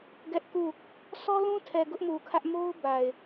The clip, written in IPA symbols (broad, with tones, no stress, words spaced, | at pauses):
ɡɛ˦ʔku˦˨ | sʰɔ˦lũ˦tʰɛ˨ ɡʊ˦ʔmu˨kʰä˦ʔ mo˦ʊ̯ ba˨ɪ̯